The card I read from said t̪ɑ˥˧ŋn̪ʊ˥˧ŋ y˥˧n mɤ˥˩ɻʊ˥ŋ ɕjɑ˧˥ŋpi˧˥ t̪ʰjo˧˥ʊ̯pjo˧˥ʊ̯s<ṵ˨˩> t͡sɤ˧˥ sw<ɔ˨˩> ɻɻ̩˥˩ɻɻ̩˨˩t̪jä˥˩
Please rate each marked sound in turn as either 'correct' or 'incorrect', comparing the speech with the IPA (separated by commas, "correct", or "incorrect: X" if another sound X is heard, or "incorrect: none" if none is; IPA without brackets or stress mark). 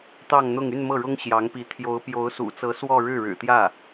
correct, incorrect: ɔ˥˧